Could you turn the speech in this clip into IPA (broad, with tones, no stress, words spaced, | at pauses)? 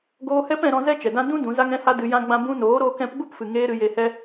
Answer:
ɡoː˧hɛ˦p ɛ̃˧ɾɔ̃˧ zɛ˦ t͡ʃɛ˨dã˦ dũ˦ dũ˨˦za˦ŋɛ̃˦ha˦ dɨ˧jã˦ɡ͡bã˦ bũ˧noː˨˦ɾoː˧k ɛ̃˨˦pɡ͡bu˦pfɨ˨ ŋeː˦ɾɨ˧je˧ hɛ˦